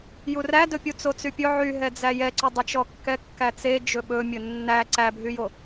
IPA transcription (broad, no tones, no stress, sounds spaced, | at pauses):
j u r æ d ɵ pʲ u t͡s o t͡s y pʲ ɵ ʕ y ɦ ɛ d͡z æ j ɛ ǀ ɵ dˤ ɛ t͡ʃ ɔ kː ɛ kː æ t͡s e d͡ʒ ɵ ɓ ɵ mʲ ɵ nː æ ǀ æ bʱ y j o